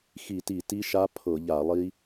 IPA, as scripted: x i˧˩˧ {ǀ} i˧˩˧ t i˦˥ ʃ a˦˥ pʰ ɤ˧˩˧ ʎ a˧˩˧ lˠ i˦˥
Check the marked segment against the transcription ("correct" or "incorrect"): incorrect